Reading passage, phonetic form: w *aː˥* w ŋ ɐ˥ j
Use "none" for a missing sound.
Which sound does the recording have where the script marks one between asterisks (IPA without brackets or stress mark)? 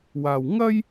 aː˨